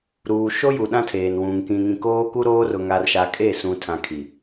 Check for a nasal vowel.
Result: present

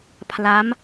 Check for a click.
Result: absent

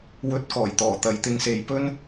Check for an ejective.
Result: absent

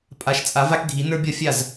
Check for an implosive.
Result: absent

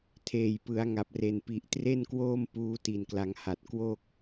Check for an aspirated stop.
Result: present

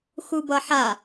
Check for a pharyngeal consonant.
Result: present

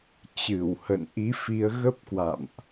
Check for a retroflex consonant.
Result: absent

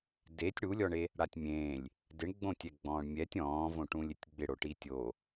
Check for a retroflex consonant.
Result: present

